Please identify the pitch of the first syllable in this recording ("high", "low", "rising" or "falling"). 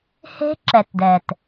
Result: high